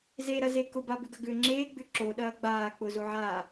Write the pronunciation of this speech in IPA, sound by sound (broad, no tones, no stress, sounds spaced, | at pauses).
z e ɾ ɐ z e k ʊ b a b ʏ ɡ ɐ ɡ ʏː ŋ͡ǁ eː ɡ͡b ʏ ǁ o ɗ ɐː ɡ͡b aː k͡p ʊ z o ʕ aː